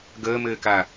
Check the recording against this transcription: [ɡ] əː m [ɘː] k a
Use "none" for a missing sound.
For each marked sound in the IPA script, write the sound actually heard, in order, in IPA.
ɡ, ɘː

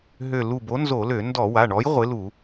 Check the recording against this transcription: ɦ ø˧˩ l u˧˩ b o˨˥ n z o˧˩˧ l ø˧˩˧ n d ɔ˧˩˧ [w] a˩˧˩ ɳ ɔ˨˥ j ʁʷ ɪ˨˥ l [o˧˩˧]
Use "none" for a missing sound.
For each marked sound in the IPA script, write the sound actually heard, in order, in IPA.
w, u˧˩˧

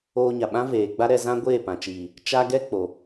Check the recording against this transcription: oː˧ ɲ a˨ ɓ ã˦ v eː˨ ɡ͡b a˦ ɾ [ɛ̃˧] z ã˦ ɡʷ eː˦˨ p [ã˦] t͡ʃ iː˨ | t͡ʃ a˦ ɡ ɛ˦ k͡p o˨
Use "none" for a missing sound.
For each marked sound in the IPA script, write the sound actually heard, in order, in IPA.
ɛ˧, ã˨

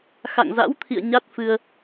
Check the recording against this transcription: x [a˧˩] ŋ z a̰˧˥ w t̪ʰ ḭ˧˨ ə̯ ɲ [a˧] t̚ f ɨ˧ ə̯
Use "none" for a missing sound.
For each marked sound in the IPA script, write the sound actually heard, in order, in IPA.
a̰˧˨, a˦˥

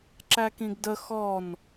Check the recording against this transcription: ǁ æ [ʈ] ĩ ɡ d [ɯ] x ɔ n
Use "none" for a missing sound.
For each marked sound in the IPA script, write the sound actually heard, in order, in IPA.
k, ə

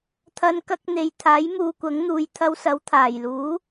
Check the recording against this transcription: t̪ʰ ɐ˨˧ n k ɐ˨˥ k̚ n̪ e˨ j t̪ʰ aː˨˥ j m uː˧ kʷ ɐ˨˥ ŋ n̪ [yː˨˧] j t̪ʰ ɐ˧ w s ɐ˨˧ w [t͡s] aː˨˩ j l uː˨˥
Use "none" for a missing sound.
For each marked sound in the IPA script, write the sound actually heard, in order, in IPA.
uː˨˧, t̪ʰ

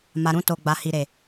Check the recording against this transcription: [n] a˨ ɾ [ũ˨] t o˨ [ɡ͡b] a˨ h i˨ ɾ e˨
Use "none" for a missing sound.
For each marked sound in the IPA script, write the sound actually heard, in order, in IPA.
m, ũ˧, ɡ͡b

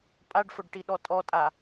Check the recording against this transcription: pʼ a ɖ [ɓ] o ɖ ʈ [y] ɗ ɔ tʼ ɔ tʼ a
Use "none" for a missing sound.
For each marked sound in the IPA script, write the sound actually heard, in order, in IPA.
f, i

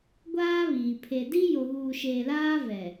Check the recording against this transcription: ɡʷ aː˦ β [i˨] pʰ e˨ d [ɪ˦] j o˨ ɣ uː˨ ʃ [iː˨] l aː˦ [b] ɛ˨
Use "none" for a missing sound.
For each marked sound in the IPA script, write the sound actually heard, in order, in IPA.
iː˨, i˦, eː˨, v

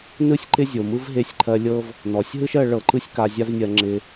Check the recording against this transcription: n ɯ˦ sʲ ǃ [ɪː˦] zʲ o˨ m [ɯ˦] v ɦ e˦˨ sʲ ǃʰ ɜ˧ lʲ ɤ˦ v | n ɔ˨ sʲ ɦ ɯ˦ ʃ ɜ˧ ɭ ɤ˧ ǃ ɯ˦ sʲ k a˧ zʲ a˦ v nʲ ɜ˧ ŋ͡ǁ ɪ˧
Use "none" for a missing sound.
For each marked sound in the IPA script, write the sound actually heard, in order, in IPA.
ɪ˦, ɯ˦

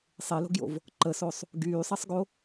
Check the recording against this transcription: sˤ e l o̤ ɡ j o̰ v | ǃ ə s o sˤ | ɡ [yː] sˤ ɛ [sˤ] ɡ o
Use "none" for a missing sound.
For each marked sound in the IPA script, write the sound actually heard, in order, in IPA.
yː, sˤ

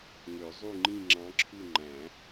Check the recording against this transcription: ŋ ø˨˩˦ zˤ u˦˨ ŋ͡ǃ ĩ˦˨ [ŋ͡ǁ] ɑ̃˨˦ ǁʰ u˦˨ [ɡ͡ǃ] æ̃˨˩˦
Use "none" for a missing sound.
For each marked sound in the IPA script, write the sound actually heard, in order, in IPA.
ŋ͡ǁ, ŋ͡ǃ

